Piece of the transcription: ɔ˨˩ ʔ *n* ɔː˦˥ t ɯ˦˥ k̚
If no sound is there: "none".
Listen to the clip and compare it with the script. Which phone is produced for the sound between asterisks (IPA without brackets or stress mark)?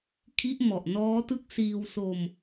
n